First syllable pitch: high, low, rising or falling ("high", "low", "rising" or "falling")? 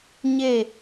falling